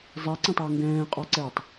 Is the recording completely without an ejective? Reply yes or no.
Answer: no